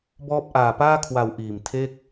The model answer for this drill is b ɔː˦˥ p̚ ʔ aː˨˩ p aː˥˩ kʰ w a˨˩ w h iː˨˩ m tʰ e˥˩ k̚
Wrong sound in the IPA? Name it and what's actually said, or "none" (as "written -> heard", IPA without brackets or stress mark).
h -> ʔ